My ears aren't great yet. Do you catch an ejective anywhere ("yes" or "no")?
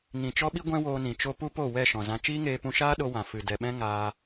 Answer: no